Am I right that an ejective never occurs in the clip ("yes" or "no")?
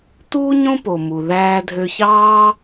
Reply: yes